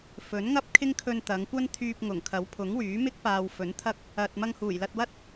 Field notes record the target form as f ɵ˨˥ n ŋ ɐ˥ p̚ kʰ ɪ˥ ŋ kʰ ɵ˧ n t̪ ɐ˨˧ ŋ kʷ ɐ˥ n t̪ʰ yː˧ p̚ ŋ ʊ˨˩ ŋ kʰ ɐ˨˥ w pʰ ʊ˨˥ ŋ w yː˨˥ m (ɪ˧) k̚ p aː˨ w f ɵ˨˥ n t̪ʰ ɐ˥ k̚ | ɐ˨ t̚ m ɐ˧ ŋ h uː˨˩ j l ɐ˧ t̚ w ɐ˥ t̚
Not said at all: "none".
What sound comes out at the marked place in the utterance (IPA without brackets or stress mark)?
ɪ˥